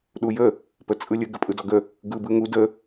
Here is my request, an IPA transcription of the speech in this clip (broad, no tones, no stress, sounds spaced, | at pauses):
ɗ u j ə | p ə t͡sʼ ɯ lʲ ə ɡ ə pʼ ɯ d ɔ ɡ ə | ɡ ɯ b ɯ ŋ u d ə